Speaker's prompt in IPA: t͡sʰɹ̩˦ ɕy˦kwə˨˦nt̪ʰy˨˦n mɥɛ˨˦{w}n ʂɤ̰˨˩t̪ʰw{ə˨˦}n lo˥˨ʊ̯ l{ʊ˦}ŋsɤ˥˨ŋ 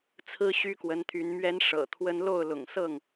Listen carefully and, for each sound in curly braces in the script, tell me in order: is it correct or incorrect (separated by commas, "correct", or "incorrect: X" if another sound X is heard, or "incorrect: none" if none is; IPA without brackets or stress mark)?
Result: incorrect: none, incorrect: ə˦, incorrect: ʊ̰˨˩